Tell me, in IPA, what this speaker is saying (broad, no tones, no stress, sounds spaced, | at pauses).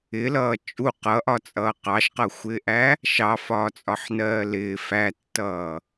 ɪ l ʌː t͡ʃʼ u q ʌ ʔ ɒ t͡sʼ ʌː q ɑ ʃ q ʌ xʷ ɪː ʔ æ | ʃ ɑ f ɒː t͡sʼ ɒ ħ n ɜː l ɪː f æ tː ʌː